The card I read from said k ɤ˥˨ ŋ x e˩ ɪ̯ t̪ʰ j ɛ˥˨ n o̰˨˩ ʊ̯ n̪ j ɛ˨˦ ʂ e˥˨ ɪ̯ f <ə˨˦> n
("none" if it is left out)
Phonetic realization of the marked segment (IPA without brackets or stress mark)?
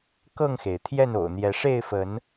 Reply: ə˨˦